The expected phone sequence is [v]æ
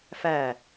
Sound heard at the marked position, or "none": f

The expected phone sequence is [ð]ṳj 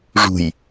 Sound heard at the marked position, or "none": ʐ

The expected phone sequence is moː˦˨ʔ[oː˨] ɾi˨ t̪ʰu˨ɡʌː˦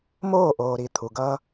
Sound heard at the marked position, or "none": oː˨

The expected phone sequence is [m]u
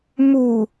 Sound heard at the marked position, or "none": m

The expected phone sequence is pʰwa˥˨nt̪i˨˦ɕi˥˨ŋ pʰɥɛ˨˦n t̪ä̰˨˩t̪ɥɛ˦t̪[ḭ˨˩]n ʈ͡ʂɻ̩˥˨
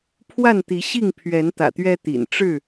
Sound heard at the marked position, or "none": ḭ˨˩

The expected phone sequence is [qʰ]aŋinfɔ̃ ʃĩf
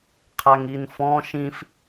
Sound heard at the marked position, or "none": qʰ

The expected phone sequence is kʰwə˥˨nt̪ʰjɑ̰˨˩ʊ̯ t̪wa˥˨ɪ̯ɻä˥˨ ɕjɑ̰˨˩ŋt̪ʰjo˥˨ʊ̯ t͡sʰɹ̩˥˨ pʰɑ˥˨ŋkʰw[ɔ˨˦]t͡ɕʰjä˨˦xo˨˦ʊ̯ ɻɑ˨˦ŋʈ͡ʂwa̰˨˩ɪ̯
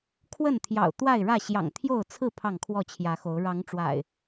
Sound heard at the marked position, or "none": ɔ˥˨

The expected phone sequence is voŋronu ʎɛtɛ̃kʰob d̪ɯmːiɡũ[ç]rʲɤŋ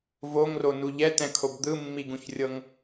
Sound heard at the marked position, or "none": ç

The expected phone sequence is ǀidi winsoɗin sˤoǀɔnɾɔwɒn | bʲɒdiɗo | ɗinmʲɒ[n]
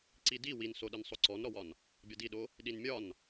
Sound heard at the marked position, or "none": n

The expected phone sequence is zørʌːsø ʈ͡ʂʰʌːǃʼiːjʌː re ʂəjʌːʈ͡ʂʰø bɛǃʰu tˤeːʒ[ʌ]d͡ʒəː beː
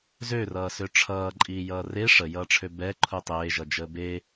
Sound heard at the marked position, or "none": ʌ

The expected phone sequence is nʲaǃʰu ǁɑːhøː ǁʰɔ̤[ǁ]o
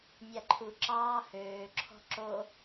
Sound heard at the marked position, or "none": ǁ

